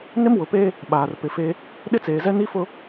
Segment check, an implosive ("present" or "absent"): present